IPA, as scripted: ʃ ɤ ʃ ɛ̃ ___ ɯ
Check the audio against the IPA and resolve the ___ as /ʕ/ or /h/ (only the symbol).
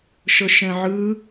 ʕ